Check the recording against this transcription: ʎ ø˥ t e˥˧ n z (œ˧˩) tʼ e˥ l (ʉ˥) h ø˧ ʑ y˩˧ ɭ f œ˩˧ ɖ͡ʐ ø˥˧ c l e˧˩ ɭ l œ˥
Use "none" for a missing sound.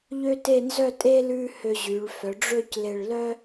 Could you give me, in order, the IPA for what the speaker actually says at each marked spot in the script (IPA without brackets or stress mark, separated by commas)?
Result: œ˥˧, ʉ˥